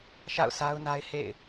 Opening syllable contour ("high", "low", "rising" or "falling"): falling